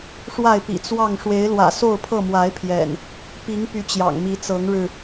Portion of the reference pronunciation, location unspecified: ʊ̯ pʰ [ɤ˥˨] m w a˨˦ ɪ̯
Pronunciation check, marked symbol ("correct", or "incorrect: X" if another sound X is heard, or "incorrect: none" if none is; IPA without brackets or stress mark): correct